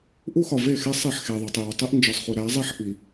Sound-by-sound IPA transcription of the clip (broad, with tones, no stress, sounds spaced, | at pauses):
ʔ u˦ x ɒ˨ v e˦˨ x e˦ sˤ e˦˨ ħ x e˨ ðˤ u˨ tˤ j o˨ tˤ i˦ ʔ n d͡ʒ ɒ˨ sˤ χ u˨ ɾ æ˨˦ zˤ i˦ ħ ʔ i˨